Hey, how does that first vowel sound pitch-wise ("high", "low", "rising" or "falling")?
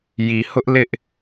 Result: low